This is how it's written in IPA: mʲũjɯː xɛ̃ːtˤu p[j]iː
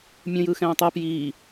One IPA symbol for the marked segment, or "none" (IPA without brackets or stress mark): j